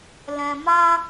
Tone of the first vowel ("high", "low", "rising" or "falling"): low